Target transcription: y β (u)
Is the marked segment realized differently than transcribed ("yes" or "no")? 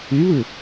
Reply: yes